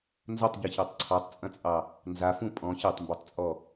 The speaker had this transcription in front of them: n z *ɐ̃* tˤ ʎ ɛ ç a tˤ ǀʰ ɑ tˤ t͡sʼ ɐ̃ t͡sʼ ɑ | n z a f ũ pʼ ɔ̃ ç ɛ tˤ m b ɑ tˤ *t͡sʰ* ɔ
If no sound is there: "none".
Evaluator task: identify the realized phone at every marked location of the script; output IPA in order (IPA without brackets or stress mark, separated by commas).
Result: ɐ, t͡sʼ